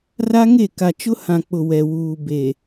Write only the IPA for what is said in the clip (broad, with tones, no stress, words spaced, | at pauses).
ra˦ŋe˦˨ ka˨t͡ʃʊ˦hã˨k͡pʊ˨ wɛ˨wuː˨ be˨